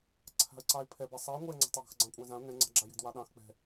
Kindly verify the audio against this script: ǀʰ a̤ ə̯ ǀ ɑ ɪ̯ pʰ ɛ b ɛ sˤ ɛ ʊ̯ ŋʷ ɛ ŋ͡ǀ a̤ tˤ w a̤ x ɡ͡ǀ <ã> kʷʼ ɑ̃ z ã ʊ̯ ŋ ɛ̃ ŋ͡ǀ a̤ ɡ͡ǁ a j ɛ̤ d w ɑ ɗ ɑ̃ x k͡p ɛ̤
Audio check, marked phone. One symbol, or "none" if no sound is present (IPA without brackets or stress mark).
ɑ̃